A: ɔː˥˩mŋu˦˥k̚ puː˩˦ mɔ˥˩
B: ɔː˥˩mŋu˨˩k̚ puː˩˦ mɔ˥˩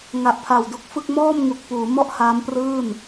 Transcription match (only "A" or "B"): B